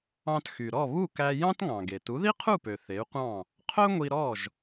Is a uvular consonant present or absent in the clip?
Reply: present